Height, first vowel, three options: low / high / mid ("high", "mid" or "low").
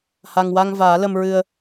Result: low